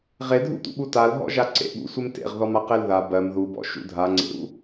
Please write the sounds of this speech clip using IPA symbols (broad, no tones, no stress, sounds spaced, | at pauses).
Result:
ʁ e dʱ ṵ t̪ ṵ ɓ u t a l ɦ ɔ̰ ʒ a ǀ ḛ ɓ ṵ sʷ e m t ḛ ʁ ð ɔ m a q e l ð a b ɜ m ð u b ɔ̰ ʃ ṵ dʱ a ŋ͡ǀ ḛ ɾ ṵ